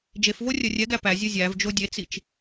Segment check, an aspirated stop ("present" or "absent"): absent